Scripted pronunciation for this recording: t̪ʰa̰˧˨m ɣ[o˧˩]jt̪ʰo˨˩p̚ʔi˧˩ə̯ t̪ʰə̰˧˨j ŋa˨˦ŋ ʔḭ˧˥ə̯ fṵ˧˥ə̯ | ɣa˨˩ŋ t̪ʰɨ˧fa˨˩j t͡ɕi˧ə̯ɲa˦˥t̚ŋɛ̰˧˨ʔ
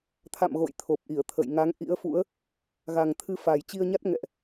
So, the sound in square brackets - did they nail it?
no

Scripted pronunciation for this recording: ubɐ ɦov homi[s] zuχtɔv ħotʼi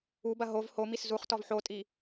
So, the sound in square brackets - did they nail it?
yes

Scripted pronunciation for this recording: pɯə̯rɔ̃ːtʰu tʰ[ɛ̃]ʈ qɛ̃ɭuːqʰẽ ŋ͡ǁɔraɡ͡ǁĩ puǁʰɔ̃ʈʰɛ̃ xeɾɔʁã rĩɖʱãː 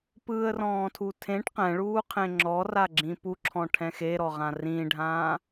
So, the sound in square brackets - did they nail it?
no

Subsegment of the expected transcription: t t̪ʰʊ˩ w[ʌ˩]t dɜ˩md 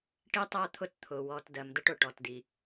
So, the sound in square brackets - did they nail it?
no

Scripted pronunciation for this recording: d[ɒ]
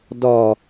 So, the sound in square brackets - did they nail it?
yes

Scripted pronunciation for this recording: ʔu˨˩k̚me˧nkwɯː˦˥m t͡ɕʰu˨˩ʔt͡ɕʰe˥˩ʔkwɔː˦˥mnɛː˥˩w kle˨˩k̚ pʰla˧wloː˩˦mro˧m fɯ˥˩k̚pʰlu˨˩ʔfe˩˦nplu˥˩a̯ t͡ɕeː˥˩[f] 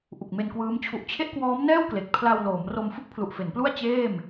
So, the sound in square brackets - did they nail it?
no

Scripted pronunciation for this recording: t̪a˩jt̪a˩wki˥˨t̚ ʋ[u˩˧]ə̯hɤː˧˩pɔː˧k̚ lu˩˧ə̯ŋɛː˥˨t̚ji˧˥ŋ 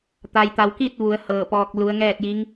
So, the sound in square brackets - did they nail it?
yes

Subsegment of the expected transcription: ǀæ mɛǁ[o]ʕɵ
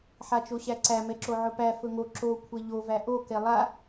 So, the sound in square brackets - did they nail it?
yes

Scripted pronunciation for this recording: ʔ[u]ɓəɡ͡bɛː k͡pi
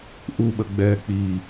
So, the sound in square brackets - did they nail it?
yes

